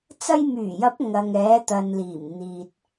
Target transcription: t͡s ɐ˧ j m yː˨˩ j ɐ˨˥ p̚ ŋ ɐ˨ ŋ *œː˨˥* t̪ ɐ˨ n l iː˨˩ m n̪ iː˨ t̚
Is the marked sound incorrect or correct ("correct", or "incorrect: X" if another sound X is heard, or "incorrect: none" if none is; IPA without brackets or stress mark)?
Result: incorrect: ɛː˨˥